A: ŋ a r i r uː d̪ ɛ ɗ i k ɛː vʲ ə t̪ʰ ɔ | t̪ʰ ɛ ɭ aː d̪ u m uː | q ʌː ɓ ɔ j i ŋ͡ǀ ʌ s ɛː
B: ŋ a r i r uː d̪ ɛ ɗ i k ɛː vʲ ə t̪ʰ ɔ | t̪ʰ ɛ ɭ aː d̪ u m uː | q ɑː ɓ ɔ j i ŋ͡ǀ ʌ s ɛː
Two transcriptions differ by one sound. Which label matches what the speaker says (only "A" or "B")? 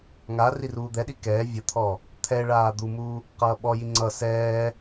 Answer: A